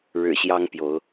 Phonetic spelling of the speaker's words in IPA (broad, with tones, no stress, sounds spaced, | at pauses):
ɻ ɻ̩˨˩ ɕ j ɑ˦ ŋ p j o˨˦ ʊ̯